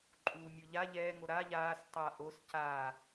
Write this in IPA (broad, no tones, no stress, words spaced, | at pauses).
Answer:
ǃʼuːmʲoʎa ʎɛːŋo ɾa ʎaːs tˤa ʔos ca